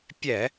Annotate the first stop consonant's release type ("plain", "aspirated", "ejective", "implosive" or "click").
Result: plain